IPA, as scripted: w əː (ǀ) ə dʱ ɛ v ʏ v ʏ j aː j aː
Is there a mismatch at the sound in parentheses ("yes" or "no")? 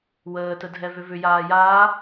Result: yes